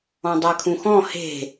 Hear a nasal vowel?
yes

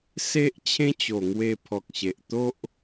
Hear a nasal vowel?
yes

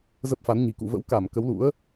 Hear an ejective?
no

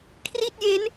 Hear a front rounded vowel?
no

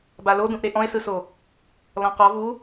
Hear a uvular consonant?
yes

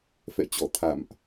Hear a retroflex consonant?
no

